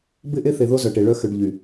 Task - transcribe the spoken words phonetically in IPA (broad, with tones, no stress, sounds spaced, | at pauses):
b ɪ˦˨ ʔ e˦ θ e˨ ð o˦ z œ˨ ʈ e˨ ɭ œ˦ x ʏ˨ ɖ ʎ y˨